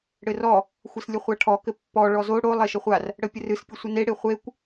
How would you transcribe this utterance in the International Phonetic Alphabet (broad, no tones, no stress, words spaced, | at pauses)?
ɽɘrɔ | xʷɘslʲəχʷaʈʰɔ kɘpːɔ ɭɔzo ɽo lˠeʃɘχʷar | ɽəpʲərɨs pʲɘsʷəne ɽeχʷekʷ